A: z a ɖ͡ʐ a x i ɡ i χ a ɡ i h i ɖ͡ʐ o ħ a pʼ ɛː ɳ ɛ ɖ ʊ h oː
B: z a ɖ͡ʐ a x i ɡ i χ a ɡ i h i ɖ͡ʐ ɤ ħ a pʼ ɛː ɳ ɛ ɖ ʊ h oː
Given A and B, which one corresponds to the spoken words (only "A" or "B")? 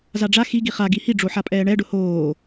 A